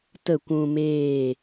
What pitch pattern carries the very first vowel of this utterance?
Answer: falling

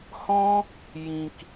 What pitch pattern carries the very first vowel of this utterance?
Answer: high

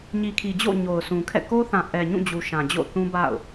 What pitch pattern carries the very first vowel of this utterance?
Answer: low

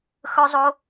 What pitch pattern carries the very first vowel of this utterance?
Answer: high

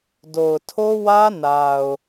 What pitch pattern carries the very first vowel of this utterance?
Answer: low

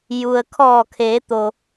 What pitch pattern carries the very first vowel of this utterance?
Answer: low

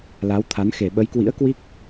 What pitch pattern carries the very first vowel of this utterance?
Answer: rising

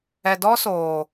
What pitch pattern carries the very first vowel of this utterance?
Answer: low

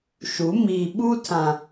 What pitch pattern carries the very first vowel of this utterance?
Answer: rising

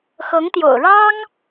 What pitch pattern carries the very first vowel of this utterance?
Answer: rising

